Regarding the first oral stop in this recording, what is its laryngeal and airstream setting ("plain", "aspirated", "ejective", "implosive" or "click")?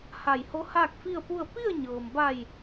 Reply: plain